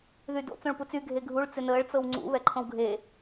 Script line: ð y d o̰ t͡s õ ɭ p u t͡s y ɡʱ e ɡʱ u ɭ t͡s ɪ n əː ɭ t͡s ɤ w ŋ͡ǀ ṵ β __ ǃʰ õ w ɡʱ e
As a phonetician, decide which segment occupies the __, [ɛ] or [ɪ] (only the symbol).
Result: ɛ